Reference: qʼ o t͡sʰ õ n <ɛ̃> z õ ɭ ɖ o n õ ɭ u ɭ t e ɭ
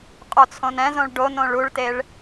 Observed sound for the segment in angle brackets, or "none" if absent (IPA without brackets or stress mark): ɛ̃